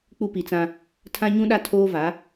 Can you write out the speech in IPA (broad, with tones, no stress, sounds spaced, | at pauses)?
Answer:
k͡p u˦ p i˨ t͡s ã˦ | tʰ ã˦ ɲ ũ˦ ɗ a˦ tʰ oː˦ v a˨˦